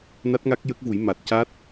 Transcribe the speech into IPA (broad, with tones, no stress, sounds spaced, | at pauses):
n a˦˥ t̚ ŋ a˦˥ k̚ j ə˦˥ k̚ v u˨˩˦ j m a˨˩ t̚ c a˦˥ t̚